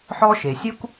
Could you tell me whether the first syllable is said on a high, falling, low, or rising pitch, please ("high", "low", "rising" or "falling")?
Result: high